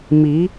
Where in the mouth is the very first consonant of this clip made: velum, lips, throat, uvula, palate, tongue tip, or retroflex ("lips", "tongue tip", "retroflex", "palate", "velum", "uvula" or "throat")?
lips